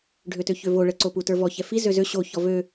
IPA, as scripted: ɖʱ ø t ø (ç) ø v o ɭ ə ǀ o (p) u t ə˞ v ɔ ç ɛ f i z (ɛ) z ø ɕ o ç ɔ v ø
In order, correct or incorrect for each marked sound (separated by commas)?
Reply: correct, correct, incorrect